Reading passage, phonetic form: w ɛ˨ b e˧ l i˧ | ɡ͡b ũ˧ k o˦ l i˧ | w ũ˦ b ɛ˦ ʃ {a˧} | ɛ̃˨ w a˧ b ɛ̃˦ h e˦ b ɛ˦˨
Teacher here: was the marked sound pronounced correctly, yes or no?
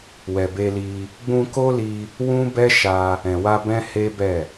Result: yes